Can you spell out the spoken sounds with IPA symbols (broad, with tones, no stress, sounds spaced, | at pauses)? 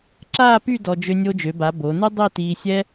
ǁ aː˥˧ p y˥˧ d ɔ˧ d͡ʒ ø˧ nʲ o˧ d͡ʒ ø˩˧ b a˩˧ b o˩˧ n u˥ dˤ i˥˧ t iː˧ sʲ ɛ˥